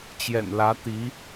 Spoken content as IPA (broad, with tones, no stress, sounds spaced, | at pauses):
t͡ɕ j ɛ̰˨˩ n l ä˧˥ t̪ i˧˥